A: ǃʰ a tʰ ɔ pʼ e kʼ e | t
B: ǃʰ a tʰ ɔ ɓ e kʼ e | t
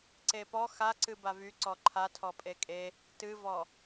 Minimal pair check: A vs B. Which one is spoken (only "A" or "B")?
A